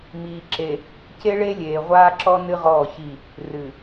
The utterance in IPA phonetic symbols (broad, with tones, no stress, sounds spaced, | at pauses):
m iː˨ ǁ e˨ | c e˦ ɭ e˦ lʲ eː˨ ʁʷ aː˦ ǁ ɔ˦ n ɨ˦ ʁ ɔː˦˨ ç i˦˨ | r ɨ˨